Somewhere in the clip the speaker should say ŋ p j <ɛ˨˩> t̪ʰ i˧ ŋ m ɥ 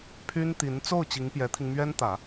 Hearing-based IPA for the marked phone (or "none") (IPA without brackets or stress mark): ɛ˧˥